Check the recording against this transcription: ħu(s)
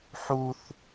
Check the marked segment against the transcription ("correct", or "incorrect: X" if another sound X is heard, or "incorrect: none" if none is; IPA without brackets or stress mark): incorrect: θ